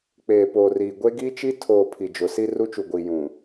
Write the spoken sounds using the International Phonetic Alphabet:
k͡p eː˨ p oː˨ r iː˨ ɡʷ e˦ ɡ iː˦ t͡ʃ i˦ tʰ oː˨ pʰ i˨ d͡ʒ ʊ˨˦ s i˦ r u˦ t͡ʃ u˨ ɡʷ iː˨ j ũ˨

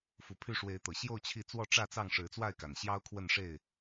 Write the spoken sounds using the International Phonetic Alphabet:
f u˨˦ pʰ y˥˨ ʂ w e˨˦ ɪ̯ t̪ ɤ˨˩ ɕ j o˥˨ ʊ̯ t͡ɕʰ i˥˨ t͡s w ɔ˥˨ ʈ͡ʂ ä˥˨ t͡s ɑ˥˨ ŋ ʂ ɻ̩˨˦ t͡s w a˥˨ ɪ̯ k a˨˩ n ɕ j ɑ˦ ʊ̯ kʰ w ə˥˨ n ʂ e˥˨ ɪ̯

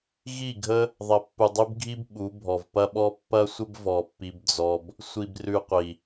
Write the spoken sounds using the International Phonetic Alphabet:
ɣ i˦˨ ɡʱ ə˦ | ðˤ ɐ˨ pː u˨ dˤ ʉ˦ b ɡʱ i˦ b ɓ u˨˦ bʱ ɔ˨ v p ɐ˧ ɓ ɔ˧ pː ɐ˦ sʷ ə˦ b v ɔ˧ pː i˦ b d͡z ɔ˦ b | sʷ i˧ b r ʉ˧ qʷ i˨

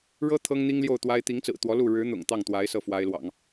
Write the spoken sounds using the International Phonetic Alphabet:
ɻ ɤ˥ t̪ʰ ɤ˥ ŋ n̪ i˥ ŋ l j o˥˩ ʊ̯ t̪ w a˥ ɪ̯ t̪ i˧˥ ŋ t͡s ɹ̩˨˩ t̪ w ɔ˧˥ l u˥˩ ɻ ɻ̩˧˥ n̪ ʊ̰˨˩ ŋ t̪ ɑ˥˩ ŋ t̪ w a˧˥ ɪ̯ s ɤ˥˩ f w a˥ ɪ̯ l w ɑ̰˨˩˦ ŋ

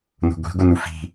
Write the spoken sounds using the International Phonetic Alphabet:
n o̤ ɡʷ i̤ ɡʷ ɪ n u f i̤

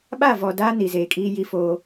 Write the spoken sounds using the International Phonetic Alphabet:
ɓ a˦˨ v ɔ˨ d a˦ n i˨ z eː˨ kʼ iː˦ j i˦ f oː˦

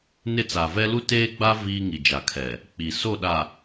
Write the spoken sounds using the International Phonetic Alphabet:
n ɪ˦˨ t͡s a˨ v ɛ˦ l u˦ t eː˦ ɡ͡b a˦ v iː˦ ŋ i˨ d͡ʒ a˨ kʰ ɛ˨ | k͡p i˨ s o˦˨ ɗ a˨

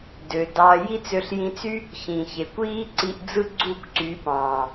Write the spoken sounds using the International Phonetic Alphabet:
d ø˨ d ɑ˧ j i˦ t͡s ø˧ ɬ j ĩ˧ t͡s y˦ | ç ĩ˨ ç e˨ kʷ iː˦ ǀ i˧ ʔ d͡z ɯ˦ ɡ͡ǀ u˦˨ kʷ ǀ y˨˦ p ɑ̃˨

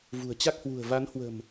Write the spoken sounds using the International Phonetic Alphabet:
v ṳ˨˩ ə̯ t͡ɕ a˦˥ k̚ h w ṳ˨˩ ə̯ v a˨˦ n h w ə̤˨˩ m

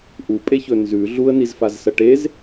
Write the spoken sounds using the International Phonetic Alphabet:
ʔ u pʼ e ç ɵ n z ʉ ɮ u ə̯ n i z f a z s ɐ ʈ e z

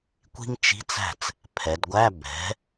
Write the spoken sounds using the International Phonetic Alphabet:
kʷ i̤˥ ŋ t͡ʃ i̤˧˥˧ t͡s æ̤˥˩ t͡s | pʰ ɛ˩˧ d ɡʷ æ˧˥˧ b ɛ̤˩˥

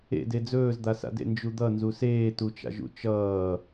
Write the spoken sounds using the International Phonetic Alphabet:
ḛ d e d͡z ɵː z d̪ a s a̰ d ḛ n d͡ʒ u d̪ ʌ n z u s eː t u t͡ʃ a̰ ʒ ṵ t͡ʃ ʌː

